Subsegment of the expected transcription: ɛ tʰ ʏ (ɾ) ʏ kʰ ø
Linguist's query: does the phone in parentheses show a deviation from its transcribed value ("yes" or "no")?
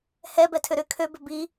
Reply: no